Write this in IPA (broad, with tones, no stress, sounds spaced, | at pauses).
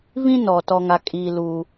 v ĩ˦ n ɔ˨ t ɔ˦ ŋ a˦ kʼ iː˦ l uː˦